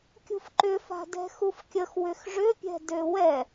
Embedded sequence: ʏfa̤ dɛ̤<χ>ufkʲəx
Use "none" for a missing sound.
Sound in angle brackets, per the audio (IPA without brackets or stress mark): x